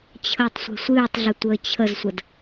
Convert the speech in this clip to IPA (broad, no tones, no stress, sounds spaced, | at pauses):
t͡ɕʰ əː tˤ sʷ e̤ sʷ ɨː tˤ ɮ ə tʷ əː t͡ɕʰ ə z sʷ ə d